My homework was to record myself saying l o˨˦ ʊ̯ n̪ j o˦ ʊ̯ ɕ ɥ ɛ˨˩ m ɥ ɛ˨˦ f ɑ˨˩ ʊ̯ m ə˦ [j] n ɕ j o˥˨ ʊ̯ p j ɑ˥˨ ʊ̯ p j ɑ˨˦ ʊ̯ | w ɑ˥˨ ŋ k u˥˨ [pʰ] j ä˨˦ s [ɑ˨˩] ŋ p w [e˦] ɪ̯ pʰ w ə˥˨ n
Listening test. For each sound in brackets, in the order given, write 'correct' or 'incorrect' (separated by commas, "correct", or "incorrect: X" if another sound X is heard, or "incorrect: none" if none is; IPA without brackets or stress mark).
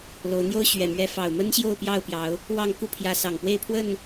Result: incorrect: none, correct, correct, incorrect: e˥˨